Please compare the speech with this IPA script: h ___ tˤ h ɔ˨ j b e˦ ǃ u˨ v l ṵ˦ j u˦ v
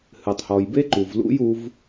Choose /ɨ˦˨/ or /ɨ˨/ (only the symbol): ɨ˨